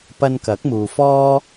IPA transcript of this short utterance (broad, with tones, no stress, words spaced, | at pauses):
pɐ˧nkɐ˨˥k̚muː˨fɔː˥